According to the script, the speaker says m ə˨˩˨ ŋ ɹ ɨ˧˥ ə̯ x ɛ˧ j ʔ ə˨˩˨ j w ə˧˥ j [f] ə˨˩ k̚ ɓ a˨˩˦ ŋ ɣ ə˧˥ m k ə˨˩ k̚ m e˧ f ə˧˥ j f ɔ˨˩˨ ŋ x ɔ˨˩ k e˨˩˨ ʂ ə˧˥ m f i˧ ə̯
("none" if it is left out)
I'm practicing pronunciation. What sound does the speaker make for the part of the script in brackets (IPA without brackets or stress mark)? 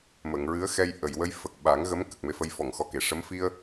f